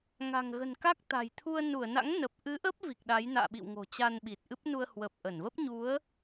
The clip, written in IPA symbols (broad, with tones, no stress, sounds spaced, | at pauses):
ŋ a̤˨˩ ŋ ɣ ə̤˨˩ n k a˦˥ k̚ t̪ a̤˨˩ j t̪ʰ u˧ ə̯ n u˧˩ ə̯ n a̰˧˥ ŋ n ə˨˩ p̚ ʔ ɨ˨˦ ʔ ə˦˥ p̚ v i˨˩ k̚ ɗ a˨˦ j n a̰ː˧˨ ɓ ḭ˧˨ w ŋ o̤˨˩ t͡ɕ a˧ n ɓ i˨˩ t̚ ʔ ɨ˦˥ p̚ n u˧ ə̯ h w ə˨˩ p̚ ʔ ə˧˩ n v ə˦˥ p̚ ɲ u˨˦ ə̯